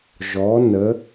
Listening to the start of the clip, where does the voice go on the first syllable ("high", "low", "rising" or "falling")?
rising